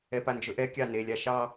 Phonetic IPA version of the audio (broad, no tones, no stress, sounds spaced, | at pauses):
ɛ p a n d͡ʒ ɵ ʔ ɛ kʲ ɑ n e lʲ a ʃ ɑ